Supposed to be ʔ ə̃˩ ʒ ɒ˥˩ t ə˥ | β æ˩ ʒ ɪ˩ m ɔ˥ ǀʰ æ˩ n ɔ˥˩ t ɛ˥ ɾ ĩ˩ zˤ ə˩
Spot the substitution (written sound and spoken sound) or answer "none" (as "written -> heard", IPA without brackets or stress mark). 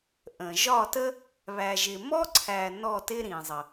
ɛ˥ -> ɪ˥